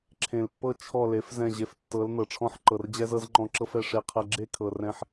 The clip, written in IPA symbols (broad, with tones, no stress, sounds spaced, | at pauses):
ǁʰ ẽ˨ l pː ɤ˧ t͡ʃʰ ɔ˦˨ l e˨˦ f z ɛ̃˦˨ ʑ e˧ f tː ɤ˨˦ l n ɤ˨ ʈ͡ʂʰ ɔ̃˦˨ ħ ǃ ɤ˨ r d͡ʑ ɛ˧ z ɤ˧ z ŋ͡ǃ ɔ̃˧ ǁ ɤ˦ f ɛ˧ ʂ e˧ qʰ ɛ˧ ɡ͡ǁ e˦ kʰ ɤ˨ r ɛ̃˧ ħ